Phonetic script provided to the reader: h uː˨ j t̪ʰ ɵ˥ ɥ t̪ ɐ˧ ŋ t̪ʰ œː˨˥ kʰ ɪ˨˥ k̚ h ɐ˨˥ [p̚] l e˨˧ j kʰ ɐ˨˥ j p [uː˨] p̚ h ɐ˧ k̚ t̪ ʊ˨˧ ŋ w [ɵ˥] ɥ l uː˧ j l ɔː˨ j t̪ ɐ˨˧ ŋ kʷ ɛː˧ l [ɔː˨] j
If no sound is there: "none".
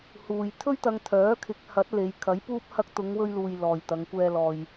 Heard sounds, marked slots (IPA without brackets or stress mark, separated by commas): t̚, uː˥, ɵ˥, ɔː˨